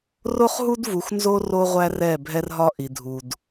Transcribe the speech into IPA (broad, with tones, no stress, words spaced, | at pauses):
ro˦χɦu˦d vu˨xnzo˦ ro˦ʁʷæ˦rɛ˦˨ bʱɛ˦rɦɒ˦ʔi˨ dʱu˨d